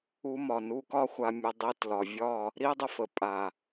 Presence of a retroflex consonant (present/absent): absent